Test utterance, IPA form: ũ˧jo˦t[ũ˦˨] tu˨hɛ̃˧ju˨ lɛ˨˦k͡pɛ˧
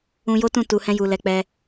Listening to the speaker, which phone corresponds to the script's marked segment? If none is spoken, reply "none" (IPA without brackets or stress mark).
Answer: ũ˦˨